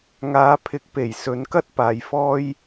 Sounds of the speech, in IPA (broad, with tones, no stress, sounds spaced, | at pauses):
ŋ aː˨˧ pʰ ɪ˨˥ k̚ p e˨˩ j s ɵ˨˧ n k ɐ˥ t̚ p aː˨ j f ɔː˥ j